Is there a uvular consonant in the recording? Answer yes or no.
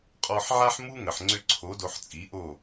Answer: yes